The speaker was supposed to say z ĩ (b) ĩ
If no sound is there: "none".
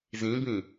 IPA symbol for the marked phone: b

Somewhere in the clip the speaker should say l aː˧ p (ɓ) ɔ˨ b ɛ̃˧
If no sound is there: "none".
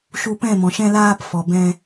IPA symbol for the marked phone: f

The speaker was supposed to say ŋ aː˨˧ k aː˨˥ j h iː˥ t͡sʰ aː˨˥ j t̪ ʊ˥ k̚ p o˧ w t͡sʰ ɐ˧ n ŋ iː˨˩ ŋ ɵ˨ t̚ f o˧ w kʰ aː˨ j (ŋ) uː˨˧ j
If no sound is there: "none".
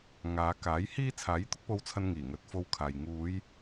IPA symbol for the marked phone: ŋ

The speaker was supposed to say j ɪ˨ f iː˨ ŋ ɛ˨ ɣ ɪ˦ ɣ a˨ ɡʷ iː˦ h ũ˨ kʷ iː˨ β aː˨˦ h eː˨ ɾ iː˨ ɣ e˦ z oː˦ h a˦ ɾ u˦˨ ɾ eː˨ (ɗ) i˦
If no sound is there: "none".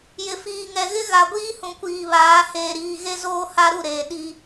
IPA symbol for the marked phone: ɗ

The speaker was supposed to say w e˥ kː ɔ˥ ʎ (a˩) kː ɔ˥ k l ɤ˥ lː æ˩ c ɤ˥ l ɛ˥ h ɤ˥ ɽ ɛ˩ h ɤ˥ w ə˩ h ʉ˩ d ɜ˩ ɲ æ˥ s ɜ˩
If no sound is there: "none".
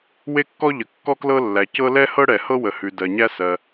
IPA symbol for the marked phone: ə˩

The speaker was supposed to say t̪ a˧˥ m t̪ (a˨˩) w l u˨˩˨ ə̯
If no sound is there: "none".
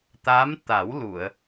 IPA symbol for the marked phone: a˨˩˦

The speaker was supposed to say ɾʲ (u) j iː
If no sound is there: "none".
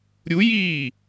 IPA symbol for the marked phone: u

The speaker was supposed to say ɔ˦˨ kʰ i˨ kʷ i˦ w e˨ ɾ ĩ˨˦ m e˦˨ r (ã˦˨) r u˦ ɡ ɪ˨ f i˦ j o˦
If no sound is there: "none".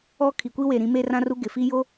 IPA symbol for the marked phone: ã˦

